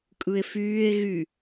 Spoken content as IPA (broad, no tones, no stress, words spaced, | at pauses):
kʼɯe̯fyːe̯ ɣy